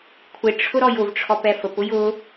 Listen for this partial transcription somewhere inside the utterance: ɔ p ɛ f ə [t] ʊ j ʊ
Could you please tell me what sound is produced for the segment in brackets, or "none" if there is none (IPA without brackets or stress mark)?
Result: p